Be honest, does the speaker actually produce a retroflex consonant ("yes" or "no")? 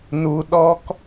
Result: no